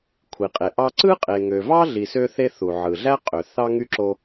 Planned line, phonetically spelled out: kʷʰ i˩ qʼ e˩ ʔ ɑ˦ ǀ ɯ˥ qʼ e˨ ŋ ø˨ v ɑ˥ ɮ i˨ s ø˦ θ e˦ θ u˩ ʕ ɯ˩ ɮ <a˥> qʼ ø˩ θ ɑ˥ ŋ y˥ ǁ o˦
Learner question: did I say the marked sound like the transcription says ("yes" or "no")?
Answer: no